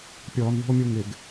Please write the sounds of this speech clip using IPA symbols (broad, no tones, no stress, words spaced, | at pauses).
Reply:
pʲɔːnðṳo̯mʲu ŋɪɡ